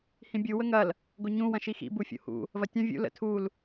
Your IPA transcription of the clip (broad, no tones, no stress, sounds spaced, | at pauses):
h ĩ bʲ u w ə ŋ ɐ l | ɡ ʊ ɲ ũ w ɐ̃ ʃ i x ḭ b u fʲ ṵ h ṵ | v ɐ tʲ ɐ̃ vʲ ṵ l ə̰ tʰ u l